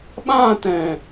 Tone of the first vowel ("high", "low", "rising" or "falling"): falling